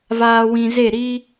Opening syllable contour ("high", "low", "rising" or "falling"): low